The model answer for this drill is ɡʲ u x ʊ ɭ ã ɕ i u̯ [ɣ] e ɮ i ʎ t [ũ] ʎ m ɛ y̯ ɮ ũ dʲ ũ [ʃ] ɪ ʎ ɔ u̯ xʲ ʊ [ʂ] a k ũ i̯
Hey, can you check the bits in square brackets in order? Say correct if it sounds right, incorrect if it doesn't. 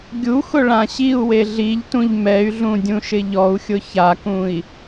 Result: incorrect: w, correct, correct, incorrect: ç

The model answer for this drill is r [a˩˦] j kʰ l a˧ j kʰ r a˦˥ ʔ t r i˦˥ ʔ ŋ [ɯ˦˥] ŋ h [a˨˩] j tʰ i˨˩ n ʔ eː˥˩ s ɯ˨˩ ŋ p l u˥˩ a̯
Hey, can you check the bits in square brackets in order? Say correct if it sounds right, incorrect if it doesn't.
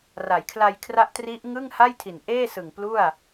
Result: correct, incorrect: ɯ˥˩, incorrect: a˥˩

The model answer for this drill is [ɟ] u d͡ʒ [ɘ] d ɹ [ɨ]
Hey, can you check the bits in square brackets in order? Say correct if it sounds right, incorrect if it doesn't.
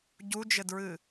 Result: correct, correct, correct

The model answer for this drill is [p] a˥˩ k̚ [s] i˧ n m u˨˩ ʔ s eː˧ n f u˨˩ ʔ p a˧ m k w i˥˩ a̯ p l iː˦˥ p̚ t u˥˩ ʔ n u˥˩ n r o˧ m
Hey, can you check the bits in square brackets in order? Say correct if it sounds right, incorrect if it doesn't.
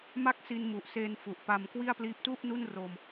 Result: incorrect: m, correct

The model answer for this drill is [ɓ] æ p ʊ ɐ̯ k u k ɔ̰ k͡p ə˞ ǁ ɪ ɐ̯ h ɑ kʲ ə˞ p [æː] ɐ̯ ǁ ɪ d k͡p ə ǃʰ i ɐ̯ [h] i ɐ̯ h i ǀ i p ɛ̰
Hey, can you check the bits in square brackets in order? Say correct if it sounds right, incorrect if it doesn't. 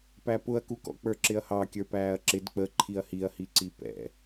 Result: incorrect: p, correct, correct

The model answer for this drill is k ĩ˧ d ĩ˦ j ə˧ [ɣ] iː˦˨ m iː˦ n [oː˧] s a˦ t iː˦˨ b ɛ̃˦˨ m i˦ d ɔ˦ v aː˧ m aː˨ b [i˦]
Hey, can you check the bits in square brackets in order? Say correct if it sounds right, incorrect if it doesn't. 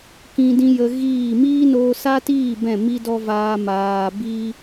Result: correct, correct, correct

